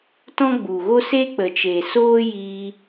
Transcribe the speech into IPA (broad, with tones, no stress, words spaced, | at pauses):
tɔ̃˦ɡ͡bu˨ɣo˦ se˦k͡pə˨t͡ʃe˨soː˦ jiː˧